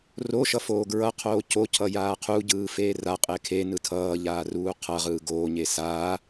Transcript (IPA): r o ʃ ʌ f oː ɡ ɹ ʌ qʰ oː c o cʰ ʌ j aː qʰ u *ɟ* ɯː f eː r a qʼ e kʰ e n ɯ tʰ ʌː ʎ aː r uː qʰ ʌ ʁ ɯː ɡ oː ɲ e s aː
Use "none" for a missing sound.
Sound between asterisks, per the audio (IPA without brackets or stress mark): ɟ